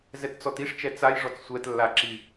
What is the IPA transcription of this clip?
z ɛ t t͡s ɔ t i ʂ t͡ʃ ɛ t͡s a j ʐ ɔ t͡s sʷ ɛ t lː a ǁ i

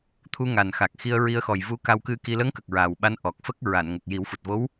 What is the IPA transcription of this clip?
t̪ʰ u˧ ŋ a˨˩ n x a˨˩ k̚ x i˧ ə̯ ɹ i˧ ə̯ x ɔ˨˩ j v u˧˥ k a˧ w k ɨ˧ k i˧ l əː˧˥ ŋ k ə˨˩ k̚ ɹ aː˨˩ w ɓ a˧˥ n ʔ ɔ˨˩ k̚ f ə˦˥ k̚ ɹ a˨˩˨ n ŋ ə˨˩ k̚ j i˨˩˦ w f u˨˩ t̚ v o˧˥ w

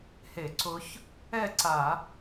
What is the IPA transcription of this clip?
h e˧˩˧ ǀ ʊ˧˥ ç | ɛ˥˩ ǀ a˧˩˧

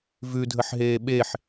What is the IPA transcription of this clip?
v ʉ dʱ ə ħ ɦ eː ɓ e ħ

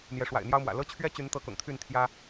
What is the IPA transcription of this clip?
n̪ j ɛ˨˦ ʂ w a̰˨˩ ɪ̯ n̪ j ɑ˦ ʊ̯ m w ä̰˨˩ l ɤ˦ t͡ɕʰ ɥ ɛ˦ t͡ɕ y˨˦ n t̪ ɤ˨˦ k ʊ̰˨˩ ŋ t̪ʰ y˥˨ n t̪ʰ j ä˦

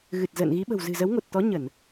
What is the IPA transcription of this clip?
ɣ ɨ˨˩ t̚ z ə̰ː˧˨ n ɣ i˨˦ ɓ ə̤˨˩ w z ɨ̤˨˩ z ə˨˦ w ŋ o˨˩ t̚ t̪ ɔ˨˦ ɲ ə˧˩˨ n

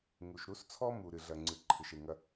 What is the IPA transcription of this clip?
ŋ u˨ ʃ ɾ u˦ s t͡sʰ ɔ˦ m u˨ ɾ ɨ˨ ɮ ɐ˨ ŋ͡ǀ ɨ˨ ǃʰ ɨ˨ ʃ e˨ ŋ ɐ˦

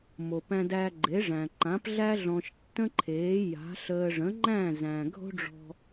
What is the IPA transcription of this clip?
m o˩ p æ̃˧ d æ˧ ɡ͡ǃ e˩˥ ʐ æ̃˩ ǃ ã˩˥ p ɮ æ˥ ɮ ɔ̃˧ ʃ tː ə̃˥ ǃʰ eː˩˥ j a̤˩˥ ɬ əː˧ ʐ ə̃˩˥ ŋ͡ǃ æ̃˥˩ z æ̃˩ ɡʱ o̤˥ ɖ͡ʐ ɔ̤˧

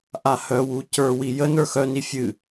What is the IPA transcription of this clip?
ʔ a h œ w u c ə˞ w i j ə n ə˞ x œ n i fʲ ɨ

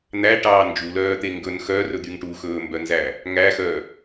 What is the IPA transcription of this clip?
n̪ æ ʈ ɑː n d͡ʒ u l œː t̪ e ŋ ɡ ɵ n x œ r ɵ d̪ y ŋ ʈ u x ɵː m b œ n z æ | ŋ æ x œ

